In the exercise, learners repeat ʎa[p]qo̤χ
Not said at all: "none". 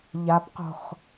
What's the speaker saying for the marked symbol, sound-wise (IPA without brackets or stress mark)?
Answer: p